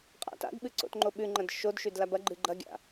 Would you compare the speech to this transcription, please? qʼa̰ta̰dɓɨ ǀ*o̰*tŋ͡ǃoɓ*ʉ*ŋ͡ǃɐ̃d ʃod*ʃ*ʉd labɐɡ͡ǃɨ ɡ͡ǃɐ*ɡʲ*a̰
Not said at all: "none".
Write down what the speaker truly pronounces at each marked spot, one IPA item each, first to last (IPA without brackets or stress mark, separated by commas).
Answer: o̰, ʉ, ʃ, ɡʲ